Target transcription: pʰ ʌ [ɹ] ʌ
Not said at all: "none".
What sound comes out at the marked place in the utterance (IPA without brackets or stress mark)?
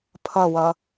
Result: w